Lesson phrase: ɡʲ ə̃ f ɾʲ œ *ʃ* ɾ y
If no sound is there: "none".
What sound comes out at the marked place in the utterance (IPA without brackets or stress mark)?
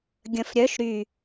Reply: ʃ